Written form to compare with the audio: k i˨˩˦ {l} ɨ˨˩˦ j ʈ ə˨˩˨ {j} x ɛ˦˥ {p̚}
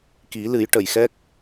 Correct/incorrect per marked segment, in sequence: correct, correct, incorrect

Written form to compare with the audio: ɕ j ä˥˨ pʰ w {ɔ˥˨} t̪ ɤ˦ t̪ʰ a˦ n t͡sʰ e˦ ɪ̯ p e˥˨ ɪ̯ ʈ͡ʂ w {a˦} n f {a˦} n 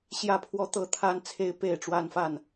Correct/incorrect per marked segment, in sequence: incorrect, correct, incorrect

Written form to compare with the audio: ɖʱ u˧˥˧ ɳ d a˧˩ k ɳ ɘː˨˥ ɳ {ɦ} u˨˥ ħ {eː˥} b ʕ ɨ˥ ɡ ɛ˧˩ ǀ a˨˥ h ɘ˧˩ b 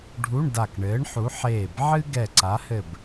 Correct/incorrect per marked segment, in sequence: incorrect, incorrect

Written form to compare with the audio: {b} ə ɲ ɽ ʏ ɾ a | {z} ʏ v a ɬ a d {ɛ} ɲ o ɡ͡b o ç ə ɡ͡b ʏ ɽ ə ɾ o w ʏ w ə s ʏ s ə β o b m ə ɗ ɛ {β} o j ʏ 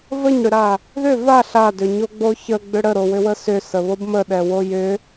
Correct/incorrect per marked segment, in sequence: incorrect, incorrect, incorrect, incorrect

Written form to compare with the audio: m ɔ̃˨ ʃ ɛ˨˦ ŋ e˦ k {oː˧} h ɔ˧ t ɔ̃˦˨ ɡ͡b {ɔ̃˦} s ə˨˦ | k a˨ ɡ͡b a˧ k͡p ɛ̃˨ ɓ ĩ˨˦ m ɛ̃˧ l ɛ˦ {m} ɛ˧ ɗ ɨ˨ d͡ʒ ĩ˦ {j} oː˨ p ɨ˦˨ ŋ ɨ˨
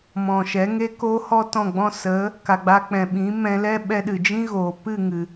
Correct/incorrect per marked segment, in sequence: correct, incorrect, incorrect, incorrect

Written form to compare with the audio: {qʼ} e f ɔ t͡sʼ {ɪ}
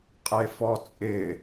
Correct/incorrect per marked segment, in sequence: correct, correct

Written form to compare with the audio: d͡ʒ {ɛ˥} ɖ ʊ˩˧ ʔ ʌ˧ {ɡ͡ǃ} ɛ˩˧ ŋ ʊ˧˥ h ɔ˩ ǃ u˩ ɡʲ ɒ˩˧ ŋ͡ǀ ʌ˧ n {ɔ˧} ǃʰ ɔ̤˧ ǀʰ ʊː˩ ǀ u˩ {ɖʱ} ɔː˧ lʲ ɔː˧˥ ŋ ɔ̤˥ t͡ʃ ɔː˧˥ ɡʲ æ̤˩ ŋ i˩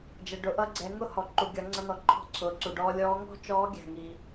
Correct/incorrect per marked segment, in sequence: incorrect, incorrect, incorrect, incorrect

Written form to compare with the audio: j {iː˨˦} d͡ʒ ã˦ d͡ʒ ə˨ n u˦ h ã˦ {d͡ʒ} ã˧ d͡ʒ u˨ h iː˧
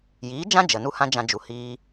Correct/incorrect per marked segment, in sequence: correct, correct

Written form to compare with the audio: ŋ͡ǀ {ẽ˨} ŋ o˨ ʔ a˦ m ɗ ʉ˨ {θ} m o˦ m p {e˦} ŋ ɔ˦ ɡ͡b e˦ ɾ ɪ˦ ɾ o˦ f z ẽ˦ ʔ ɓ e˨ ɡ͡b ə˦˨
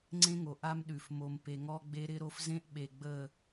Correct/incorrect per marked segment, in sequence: incorrect, incorrect, correct

